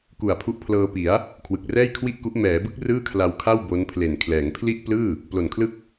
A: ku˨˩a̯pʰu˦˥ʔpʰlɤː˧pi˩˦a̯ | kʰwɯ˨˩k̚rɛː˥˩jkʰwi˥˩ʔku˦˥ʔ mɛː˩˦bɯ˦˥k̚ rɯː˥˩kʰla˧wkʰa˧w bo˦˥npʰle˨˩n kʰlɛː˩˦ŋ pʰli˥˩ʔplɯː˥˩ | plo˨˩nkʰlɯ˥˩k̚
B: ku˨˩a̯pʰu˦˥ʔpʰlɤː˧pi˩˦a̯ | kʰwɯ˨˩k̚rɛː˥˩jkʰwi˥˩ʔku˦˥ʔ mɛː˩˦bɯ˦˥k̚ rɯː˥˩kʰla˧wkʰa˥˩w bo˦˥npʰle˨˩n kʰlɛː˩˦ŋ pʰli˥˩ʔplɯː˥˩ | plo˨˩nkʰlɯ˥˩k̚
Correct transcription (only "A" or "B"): B